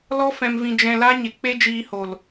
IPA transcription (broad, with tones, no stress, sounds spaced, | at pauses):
l ɔ˦ f ɛ̃˧ m v ĩ˧ d͡ʒ ɛ̃˧ l a˦ ɲ e˨ k͡p e˦ d͡ʒ iː˧ h o˨ l